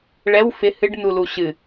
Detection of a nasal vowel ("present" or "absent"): absent